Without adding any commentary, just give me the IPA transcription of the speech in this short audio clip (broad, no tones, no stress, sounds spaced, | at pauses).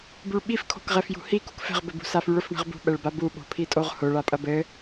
b y ɭ ɓ i f kʰ o̤ k ʁ ɛ f j ṳ h i k ṳ k f ɛ̤ ʁ b ɘ b ṳ s a f y ɭ ʊ f ɳ ɛ̤ ʁ b ṳ ɓ ɛ ɭ b a b u ɓ o̤ pʰ i tʼ o ʁ h ʊ ɭ a pʼ ɐ b ɘ